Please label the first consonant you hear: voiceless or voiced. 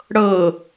voiced